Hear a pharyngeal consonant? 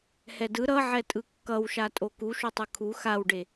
yes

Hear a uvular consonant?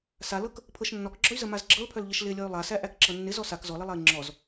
no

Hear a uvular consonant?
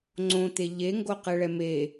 yes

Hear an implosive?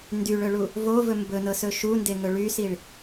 no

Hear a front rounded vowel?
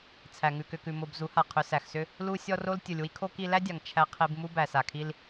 yes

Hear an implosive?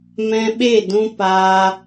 yes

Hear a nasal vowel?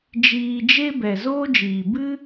no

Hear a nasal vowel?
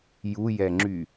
no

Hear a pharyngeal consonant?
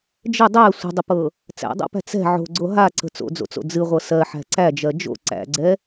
yes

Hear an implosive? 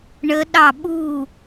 yes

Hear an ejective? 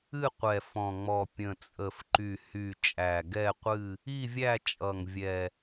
yes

